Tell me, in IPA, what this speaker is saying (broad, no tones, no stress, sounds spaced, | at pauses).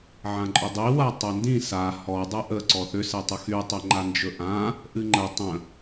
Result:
ʕ ã ǃʼ ʏ dˤ i w a tˤ ɛ n d ĩ s a h ɔ dˤ ɛ ʔ ə ǀ ɔ θ ʏ s ɛ tˤ ə x y tˤ ɵ ŋ͡ǃ a n d͡ʒ ɵ ʔ ã | ʔ ɨ ŋ͡ǃ ə tˤ ə̃